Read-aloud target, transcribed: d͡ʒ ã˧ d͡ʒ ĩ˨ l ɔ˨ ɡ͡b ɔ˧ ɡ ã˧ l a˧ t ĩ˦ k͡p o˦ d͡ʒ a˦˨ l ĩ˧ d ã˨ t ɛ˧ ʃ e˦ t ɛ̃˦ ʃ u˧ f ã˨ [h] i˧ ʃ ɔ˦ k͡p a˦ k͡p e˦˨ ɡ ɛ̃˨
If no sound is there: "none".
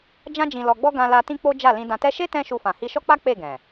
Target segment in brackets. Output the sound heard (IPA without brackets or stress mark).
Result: h